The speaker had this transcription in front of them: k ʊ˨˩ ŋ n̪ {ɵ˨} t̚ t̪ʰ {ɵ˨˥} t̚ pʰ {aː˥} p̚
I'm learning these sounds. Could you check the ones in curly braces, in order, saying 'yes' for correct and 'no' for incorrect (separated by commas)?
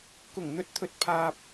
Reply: yes, yes, no